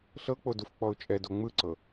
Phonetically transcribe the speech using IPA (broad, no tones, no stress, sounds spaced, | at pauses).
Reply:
ɬ ɤ k͡p o d u f k͡p ɔ ʊ̯ t͡ʃʼ ɛ d o ŋ͡m ɯ ǀ ɤ